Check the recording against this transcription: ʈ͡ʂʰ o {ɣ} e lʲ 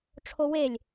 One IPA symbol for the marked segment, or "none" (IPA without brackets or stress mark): w